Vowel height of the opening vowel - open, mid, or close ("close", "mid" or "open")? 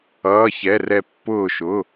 mid